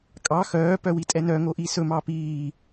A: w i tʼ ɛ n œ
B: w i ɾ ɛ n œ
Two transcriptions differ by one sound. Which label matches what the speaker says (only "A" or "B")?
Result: A